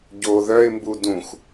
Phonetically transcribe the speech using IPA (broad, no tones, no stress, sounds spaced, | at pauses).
ɟ o ð œ ɪ̯ m b u d ũ x